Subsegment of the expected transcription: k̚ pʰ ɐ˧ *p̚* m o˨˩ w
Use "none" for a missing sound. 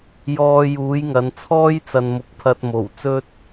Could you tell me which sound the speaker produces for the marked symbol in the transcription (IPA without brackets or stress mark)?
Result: t̚